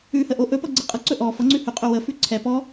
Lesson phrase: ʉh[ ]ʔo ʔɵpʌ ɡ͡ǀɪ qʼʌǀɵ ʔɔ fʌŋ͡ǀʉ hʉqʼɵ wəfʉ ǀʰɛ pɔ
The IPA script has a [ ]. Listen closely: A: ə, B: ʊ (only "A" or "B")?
A